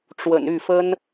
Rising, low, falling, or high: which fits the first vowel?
low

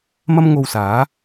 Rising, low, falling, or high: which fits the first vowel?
high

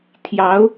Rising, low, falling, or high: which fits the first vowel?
rising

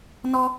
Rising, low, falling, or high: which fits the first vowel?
high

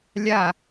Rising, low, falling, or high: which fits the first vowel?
falling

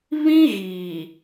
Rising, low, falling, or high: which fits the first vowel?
high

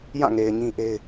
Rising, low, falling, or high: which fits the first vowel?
falling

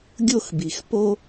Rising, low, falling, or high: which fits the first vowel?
falling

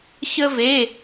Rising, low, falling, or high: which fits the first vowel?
high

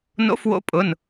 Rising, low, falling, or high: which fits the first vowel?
rising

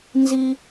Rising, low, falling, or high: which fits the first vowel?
high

